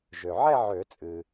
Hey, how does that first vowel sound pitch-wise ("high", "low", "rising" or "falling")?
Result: low